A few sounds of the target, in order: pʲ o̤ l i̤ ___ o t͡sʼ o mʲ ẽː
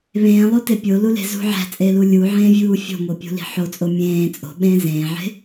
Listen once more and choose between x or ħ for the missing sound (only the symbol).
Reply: ħ